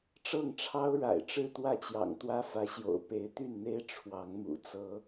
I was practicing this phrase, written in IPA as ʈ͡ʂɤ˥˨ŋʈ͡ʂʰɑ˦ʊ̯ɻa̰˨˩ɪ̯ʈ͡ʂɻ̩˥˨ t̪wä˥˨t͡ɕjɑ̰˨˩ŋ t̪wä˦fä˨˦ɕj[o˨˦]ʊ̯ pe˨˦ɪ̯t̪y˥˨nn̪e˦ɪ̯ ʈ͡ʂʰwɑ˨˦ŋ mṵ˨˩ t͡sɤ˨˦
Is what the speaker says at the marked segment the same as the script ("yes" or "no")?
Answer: no